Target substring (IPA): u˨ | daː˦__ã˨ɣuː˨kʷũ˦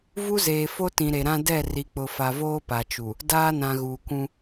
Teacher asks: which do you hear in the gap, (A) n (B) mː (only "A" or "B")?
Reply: A